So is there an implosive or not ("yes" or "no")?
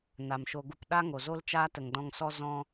yes